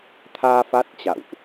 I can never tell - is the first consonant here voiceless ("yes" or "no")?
yes